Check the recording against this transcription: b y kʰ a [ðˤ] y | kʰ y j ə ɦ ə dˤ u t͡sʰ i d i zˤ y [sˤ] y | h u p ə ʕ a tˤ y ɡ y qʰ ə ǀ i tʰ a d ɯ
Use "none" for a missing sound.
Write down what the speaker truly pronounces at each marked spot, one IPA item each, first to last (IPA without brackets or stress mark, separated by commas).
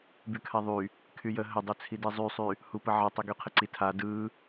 ðˤ, sˤ